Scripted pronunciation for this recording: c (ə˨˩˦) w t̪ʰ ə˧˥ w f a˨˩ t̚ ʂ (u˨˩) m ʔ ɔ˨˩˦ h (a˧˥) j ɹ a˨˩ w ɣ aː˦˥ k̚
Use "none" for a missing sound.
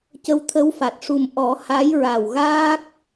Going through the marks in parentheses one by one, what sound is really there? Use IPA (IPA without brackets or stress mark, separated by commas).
ə˧˥, u˨˩, a˧˥